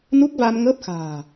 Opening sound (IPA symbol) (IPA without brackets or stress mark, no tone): n